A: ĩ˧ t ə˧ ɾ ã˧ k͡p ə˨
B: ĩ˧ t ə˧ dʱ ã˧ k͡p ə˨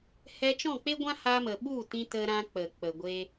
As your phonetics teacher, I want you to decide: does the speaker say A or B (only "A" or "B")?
A